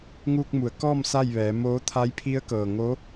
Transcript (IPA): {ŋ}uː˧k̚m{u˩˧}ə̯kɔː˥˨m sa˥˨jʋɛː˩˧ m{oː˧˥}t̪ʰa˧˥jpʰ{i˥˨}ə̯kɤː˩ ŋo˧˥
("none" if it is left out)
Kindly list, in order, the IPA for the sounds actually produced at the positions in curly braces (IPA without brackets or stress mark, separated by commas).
ŋ, u˩˧, oː˧˥, i˧˥